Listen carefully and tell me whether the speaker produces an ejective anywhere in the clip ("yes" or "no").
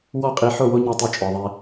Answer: yes